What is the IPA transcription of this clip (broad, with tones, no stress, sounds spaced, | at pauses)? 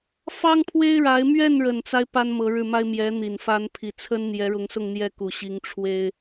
f ɑ˥ ŋ pʰ w e˥ ɪ̯ ɻ a˧˥ ɪ̯ m ɥ ɛ˥˩ n ɻ ə˨˩ n t͡s a˦ ɪ̯ p a˥ n m ɤ˧˥ ɻ ɻ̩˥˩ m a˥ ɪ̯ m j ɛ˧˥ n̪ i˨˩ n f a˧˥ n pʰ i˨˩ t͡sʰ ə˥ n n̪ j ɛ˧˥ ɻ ʊ˧˥ ŋ s ʊ˥˧ ŋ n̪ j ɛ˥˩ k u˨˩ ɕ i˧˥ ŋ ʈ͡ʂʰ w e˥ ɪ̯